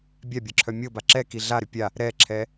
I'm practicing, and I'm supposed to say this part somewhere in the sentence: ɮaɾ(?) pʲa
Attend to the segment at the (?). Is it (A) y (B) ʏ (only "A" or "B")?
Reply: B